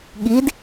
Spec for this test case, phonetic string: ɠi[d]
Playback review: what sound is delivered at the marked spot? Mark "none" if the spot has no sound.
d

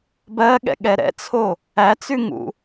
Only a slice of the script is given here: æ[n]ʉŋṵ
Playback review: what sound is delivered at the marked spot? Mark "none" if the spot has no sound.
t͡s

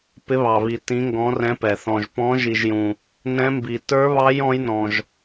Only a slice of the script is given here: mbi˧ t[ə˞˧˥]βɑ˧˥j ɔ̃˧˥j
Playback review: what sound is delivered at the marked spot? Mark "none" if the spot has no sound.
ə˞˧˥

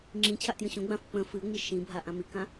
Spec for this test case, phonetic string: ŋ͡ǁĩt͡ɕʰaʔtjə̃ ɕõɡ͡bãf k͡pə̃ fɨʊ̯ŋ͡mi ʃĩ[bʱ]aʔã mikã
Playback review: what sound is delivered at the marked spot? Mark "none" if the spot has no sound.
bʱ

